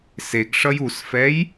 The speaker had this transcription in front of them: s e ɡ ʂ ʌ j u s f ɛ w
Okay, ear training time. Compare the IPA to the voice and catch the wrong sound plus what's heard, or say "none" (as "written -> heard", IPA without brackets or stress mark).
w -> j